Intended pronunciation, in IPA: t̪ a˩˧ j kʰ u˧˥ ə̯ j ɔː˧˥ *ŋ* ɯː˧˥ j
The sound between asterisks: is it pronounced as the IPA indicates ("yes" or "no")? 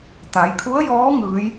yes